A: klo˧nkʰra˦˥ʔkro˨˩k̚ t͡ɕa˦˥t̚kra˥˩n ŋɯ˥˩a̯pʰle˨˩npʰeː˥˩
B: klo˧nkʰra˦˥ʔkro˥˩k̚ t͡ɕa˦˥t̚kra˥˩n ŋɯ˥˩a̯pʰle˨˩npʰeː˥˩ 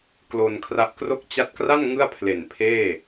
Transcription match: B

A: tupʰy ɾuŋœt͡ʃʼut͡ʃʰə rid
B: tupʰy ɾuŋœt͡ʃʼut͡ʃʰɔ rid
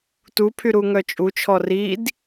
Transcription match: B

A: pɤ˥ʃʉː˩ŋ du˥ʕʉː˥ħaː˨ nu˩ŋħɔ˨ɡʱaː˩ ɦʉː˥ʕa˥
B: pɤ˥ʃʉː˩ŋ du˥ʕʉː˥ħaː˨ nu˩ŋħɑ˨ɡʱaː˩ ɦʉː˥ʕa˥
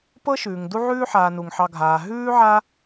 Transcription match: B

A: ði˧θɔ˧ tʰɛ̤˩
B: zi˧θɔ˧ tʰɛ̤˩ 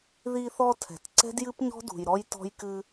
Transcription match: A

